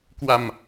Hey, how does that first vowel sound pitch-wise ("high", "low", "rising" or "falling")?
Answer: low